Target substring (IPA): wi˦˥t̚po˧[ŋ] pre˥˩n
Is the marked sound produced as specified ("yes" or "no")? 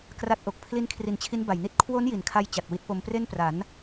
no